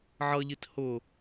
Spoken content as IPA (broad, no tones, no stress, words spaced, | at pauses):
ʕʌʎit hʊ